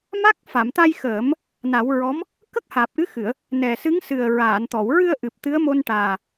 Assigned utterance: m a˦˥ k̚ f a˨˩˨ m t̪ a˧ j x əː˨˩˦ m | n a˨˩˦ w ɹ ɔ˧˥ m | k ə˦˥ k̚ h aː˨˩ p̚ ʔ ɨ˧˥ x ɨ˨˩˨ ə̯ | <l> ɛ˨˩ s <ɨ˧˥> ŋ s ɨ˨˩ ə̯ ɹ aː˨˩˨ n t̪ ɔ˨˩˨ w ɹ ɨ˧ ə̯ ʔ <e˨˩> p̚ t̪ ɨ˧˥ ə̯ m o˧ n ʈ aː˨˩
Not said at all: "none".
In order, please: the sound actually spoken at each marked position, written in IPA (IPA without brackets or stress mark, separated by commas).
n, ɨ˧˥, ɨ˨˩